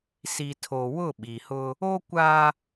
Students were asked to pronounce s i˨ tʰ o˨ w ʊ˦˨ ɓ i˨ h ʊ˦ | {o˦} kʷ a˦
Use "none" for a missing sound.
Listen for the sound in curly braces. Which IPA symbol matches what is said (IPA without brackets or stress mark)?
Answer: o˦